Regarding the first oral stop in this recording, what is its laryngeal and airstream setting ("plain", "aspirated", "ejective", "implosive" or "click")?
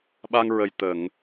implosive